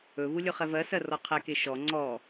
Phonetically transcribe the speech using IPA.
ɵ v u lʲ ɵ χ ɛ v ɜ s ɜ r ɔ qʰ ɛ k e ʃ ɔ ŋ͡ǀ ɔ

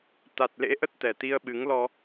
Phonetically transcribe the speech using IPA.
t̪ a˨˩ t̚ l ḛ˧˥ ʔ ə˦˥ t̚ t̪ ɛ˨˩ t̪ i˧ ə̯ ɓ ɨ˨˦ ŋ l ɔ˧

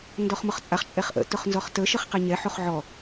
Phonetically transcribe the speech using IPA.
n d ɔ χ m ʊ χ t͡sʼ a χ t͡ʃʼ ɛ χ ʔ ə̰ t ʊ χ n z ɔ χ t ə ʃ ə χ q e ɲ ɛ ħ o χ ʕ ɔ

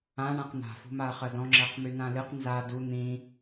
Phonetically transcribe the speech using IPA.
ã ɳ ã q n̪ a̤ f ṳ m a ɐ̯ χ ɜ d ɔ̃ ŋ͡ǁ ɜ q m y n ã l ɨ q n z a d u n̪ ĩ

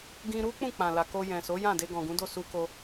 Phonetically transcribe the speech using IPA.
ɡ ĩ˧ ɾ u˦ k͡p ũ˦˨ k͡p ã˨ l a˨ k o˧ j ɛ̃˨ s o˨˦ j ã˦˨ d e˧ ɡ ɔ̃˨ ɡ ũ˨˦ d o˦˨ s u˧ k o˧

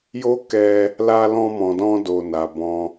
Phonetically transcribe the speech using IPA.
j o˦ k ɛ˧ | l a˧ l ɔ̃˧ m ɔ̃˨ d ɔ̃˧ d o˨ n a˨ b ɔ̃˧

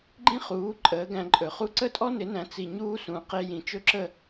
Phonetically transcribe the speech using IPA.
ɡ͡ǃ ĩ˥ χ uː˩˥ ǃʼ əː˩˥ ɡ æ̃˧ ǃʼ ɵ˩ χ u˥ ǀ ə˥ tʼ ɔ˥ n ɪ˩˥ n æ̃˩˥ t͡s i˩ ɲ uː˧ s ũ˩˥ q e˧ j ĩ˩ t͡ʃ ɵ˥ ǁ ə˥˩

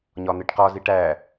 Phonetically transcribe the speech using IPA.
ɲ ɒ n̪ e ʈ q ɒ z i ʈ æ

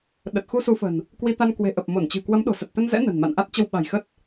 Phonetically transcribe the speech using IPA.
ɗ ə˨˩ t̚ x u˧ s u˨˦ f ə̤˨˩ n | k w i˧ t̪ a˧ n k w e̤˨˩ ʔ ə˨˩ p̚ m o˧˩ n t͡ɕ ɨ̤˨˩ k w ə˨˦ m ɗ o̤˨˩ s ə˨˩ t̚ t̪ ə˧ n z ɛ̰˧˥ n ə̤˨˩ n m a̰˧˨ n ʔ a˦˥ t̚ t͡ɕ ə˧ w ɓ a̤˨˩ j x ə˦˥ t̚

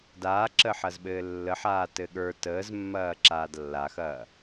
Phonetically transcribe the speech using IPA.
d aː ǁ əː ħ ɐ z ɓ ɘː lː ə ħ aː t ɘ ɠ ə˞ t əː z mː ɐː ǁ aː d lː a x ɐː

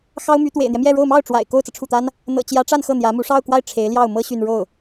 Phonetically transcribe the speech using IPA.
x ɑ˥ ʊ̯ m y˧˥ t̪ w ḛ˨˩ ɪ̯ n̪ j ɛ˦ m j ɛ˥˧ ɻ o˥˧ ʊ̯ m ɑ˥˩ ʊ̯ ʈ͡ʂ w a̰˨˩ ɪ̯ k o˥˩ ʊ̯ t͡s ɤ˩ ʈ͡ʂʰ u˥˩ t̪ a˥ n | n̪ ɤ̰˨˩ t͡ɕ j ä˧˥ ʈ͡ʂ a˥˧ n x ɤ˥˩ n̪ j ä˧˥ m u˧˥ ʂ ɑ˥˧ ʊ̯ k w a˥˩ ɪ̯ ʈ͡ʂʰ e˧˥ ɪ̯ l j ɑ˥˩ ʊ̯ m ɤ˥ ɕ y˥˧ n ɻ o˥˩ ʊ̯

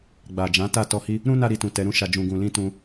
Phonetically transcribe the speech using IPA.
ɡ͡b a˨ d͡ʒ ã˨˦ t a˦˨ t ɔ˧ h i˦ | ɾ ũ˦ n a˧ ɾ i˨ t ũ˨ t ɛ˨˦ ɾ ũ˦ ʃ a˧ d͡ʒ ũ˧ ɡ ũ˨ l ĩ˧ t ũ˧

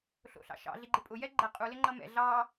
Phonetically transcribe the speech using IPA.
ɬ o̰ ɬ ɑ̰ ʃ ɑ̰ ɮ i ɡ͡ǃ ɪ pʼ ʊ j ɛ ɡ͡ǃ ɛ qʼ u l ɪ ŋ͡ǃ ʌ m ɛ̰ ɮ ɑ

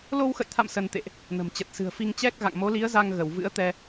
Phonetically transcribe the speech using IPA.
l o˧ w x ə̰˧˨ j t̪ʰ a̰˧˨ m s ə˧ n t̪ ḛ˧˨ ʔ | n ə̤˨˩ m t͡ɕ ə˨˩ t̚ s ɨ̤˨˩ ə̯ f i˧ ŋ t͡ɕ ɛ˦˥ k̚ ɣ a̰˧˨ ŋ m o˨˦ l i˨˦ ə̯ z a˧ ŋ ɣ ə˧˩ w v ɨ̰˧˥ ə̯ t̪ ɛ˧

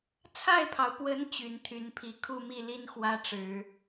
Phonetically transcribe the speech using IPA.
t͡sʰ a˥˩ ɪ̯ pʰ ɑ˩ ʊ̯ p w ə˧˥ n t͡ɕ y˨˩ n t̪ʰ y˧˥ n pʰ i˨˩ kʰ u˥˧ m i˥˩ l i˥ n x w ä˥ ʈ͡ʂ ɻ̩˨˩˦

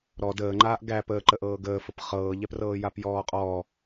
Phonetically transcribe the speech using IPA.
ɾ ɔ d əː ŋ͡ǃ aː ʔ ɡ æ p əː ǃ ə ʔ ɤː ɡ əː f ə p χ ɤː ʎ ɛ p r ɤː j a p j ɔː qʼ ɔː

